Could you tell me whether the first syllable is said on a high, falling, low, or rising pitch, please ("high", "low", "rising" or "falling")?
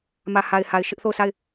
low